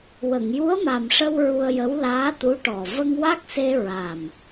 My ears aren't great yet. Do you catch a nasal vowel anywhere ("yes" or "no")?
no